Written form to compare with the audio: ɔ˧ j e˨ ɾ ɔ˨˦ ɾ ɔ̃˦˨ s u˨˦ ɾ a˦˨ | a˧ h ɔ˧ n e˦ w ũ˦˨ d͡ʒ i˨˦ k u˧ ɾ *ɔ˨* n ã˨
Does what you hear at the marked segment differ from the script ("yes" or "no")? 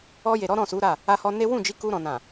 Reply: yes